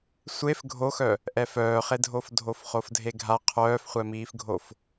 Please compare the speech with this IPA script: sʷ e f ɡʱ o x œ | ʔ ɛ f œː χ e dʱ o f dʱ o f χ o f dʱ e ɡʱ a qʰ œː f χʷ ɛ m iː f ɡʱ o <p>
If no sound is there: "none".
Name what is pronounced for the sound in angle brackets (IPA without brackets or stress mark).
f